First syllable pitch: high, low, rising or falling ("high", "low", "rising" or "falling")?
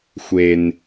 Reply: low